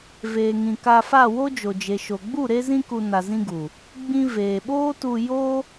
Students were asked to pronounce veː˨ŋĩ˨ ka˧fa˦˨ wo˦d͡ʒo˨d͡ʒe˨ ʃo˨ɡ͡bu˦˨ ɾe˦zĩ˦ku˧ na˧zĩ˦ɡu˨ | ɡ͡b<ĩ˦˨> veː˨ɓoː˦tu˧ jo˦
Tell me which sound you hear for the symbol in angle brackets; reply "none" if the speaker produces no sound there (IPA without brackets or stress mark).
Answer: ĩ˦